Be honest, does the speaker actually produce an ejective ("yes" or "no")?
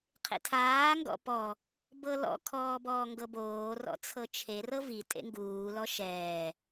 yes